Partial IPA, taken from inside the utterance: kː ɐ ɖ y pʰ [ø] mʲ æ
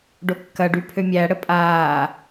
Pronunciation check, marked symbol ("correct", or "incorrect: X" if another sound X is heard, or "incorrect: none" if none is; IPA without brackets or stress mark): correct